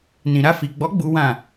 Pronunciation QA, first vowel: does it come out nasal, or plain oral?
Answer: nasal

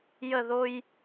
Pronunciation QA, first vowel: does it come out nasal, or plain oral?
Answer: oral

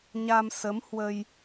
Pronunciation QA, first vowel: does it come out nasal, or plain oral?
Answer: oral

